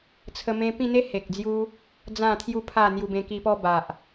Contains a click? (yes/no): no